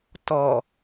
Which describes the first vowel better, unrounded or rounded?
rounded